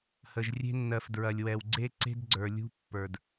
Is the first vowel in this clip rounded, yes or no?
no